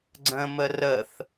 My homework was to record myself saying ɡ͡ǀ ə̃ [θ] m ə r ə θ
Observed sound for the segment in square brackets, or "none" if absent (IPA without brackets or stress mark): none